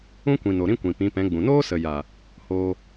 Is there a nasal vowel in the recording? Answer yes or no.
yes